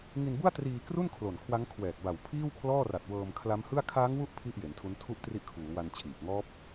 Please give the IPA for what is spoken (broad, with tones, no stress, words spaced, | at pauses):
ŋi˧nbu˥˩a̯triː˧kru˥˩n kʰlo˨˩nkʰwa˦˥ŋkʰwɛː˨˩k̚ba˨˩w pʰiː˥˩wkʰlɔː˥˩ ra˨˩t̚wɤː˧mkʰla˦˥mhɯ˥˩a̯ kʰaː˦˥ŋwu˦˥ʔ pʰi˥˩ʔje˩˦ntʰu˦˥n tʰu˥˩ʔtri˦˥ʔkʰuː˩˦wa˧n t͡ɕʰiː˨˩p̚ ŋɔː˦˥p̚